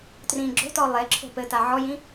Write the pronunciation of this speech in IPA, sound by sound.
t r ĩ ɡ͡ǁ o̤ t ɔ lˠ e ǁʰ o̤ p ɘ t a ʕ ɔ j ĩ

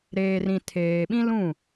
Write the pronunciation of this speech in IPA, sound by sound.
ɾ eː˨ r ĩ˨ tʰ eː˨ ɓ ĩ˦ l ũ˦˨

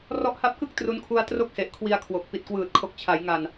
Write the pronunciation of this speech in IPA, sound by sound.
r ɔ˦˥ ʔ h a˦˥ p̚ k ɯ˥˩ k̚ t r u˦˥ n kʰ u˦˥ a̯ t r o˥˩ k̚ s e˨˩ ʔ kʰ w i˧ a̯ kʰ w o˨˩ k̚ p i˨˩ t̚ k w ɯː˨˩ t̚ kʰ o˨˩ k̚ t͡ɕʰ a˩˦ j ŋ a˨˩ n

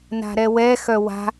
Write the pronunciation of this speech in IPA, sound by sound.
n a̤ ɾ ɛ w ɛ x œ w a̤

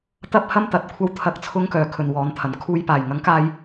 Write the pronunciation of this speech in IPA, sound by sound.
t̪ ɐ˥ p̚ h ɐ˥ m t̪ ɐ˨˥ t̚ kʷʰ ɐ˥ w t̪ʰ ɐ˧ k̚ t͡sʰ ʊ˥ ŋ k œː˨ kʰ ɵ˨ n w ɔː˨˧ n t̪ʰ ɐ˨˩ n kʰ uː˧ j p aː˨˩ j ŋ ɐ˨˥ ŋ k aː˧ j

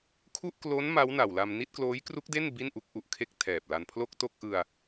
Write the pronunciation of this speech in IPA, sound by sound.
kʰ u˥˩ ʔ k l o˦˥ n m a˦˥ w n a˨˩ w l a˧ m n i˥˩ t̚ k l oː˦˥ j k r u˦˥ k̚ d e˥˩ n b i˥˩ n ʔ u˦˥ k̚ ʔ u˨˩ ʔ kʰ e˥˩ k̚ tʰ ɛː˨˩ p̚ l a˧ n pʰ l o˥˩ k̚ t o˥˩ k̚ ʔ ɯ˧ a̯

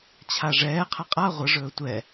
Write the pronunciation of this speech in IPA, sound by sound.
t͡ɕʰ a ʐ ɛː qʰ ɐ qʼ a ʁʷ ə ʐ ɵː tʷ ɛ

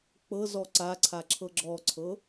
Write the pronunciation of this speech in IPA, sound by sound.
k͡p ɤ z ɔ ǀ a ǀʰ a ǁʰ ɤ ɡ͡ǁ ɔ ǀʰ ɤ

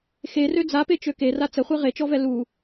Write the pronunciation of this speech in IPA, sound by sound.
x e r ø d͡z a p e t͡ʃ ø k e r a t͡s ə χʷ e ʁ e t͡ʃ ɔ v ɛ l u

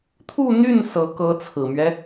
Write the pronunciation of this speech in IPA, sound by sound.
t̪ʰ u˥˧ n̪ y˥˩ n s ɤ˧˥ k ɤ˧˥ t͡sʰ ɹ̩˨˩ m ɥ ɛ˦

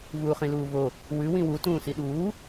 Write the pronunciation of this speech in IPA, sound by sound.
v uː χ ĩ l uː v o | w ʉ w ĩ w u t ũː s i ɗ uː

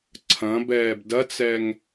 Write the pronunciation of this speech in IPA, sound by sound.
ǀʰ ɐ̃ b ɛː b d ɐ t͡s ɛ ŋ

